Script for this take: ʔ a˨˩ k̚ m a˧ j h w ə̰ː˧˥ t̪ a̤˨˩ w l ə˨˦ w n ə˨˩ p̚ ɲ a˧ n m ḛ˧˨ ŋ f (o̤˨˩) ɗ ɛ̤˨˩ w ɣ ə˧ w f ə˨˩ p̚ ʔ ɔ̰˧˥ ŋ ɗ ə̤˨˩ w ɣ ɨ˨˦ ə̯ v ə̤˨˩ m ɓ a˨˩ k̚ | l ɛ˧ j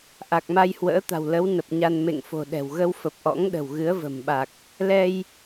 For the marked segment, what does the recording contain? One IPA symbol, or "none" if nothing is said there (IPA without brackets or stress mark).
o̤˨˩